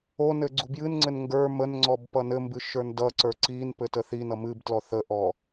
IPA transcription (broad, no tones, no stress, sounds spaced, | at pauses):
o n ɘ ɡ͡ǀ u b j ɨ n ŋ͡ǀ ɘ n ŋ ɡ ə˞ m ə n ŋ͡ǀ ɔ b p ʌ n ɘ m b ɨ ʃ ə˞ n d ʌ ǀ ə˞ ǀ i n p ɘ t ə θ i n ʌ m ɨ b t l ɔ θ ə ʔ ɔ